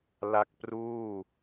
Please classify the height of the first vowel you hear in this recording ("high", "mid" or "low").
low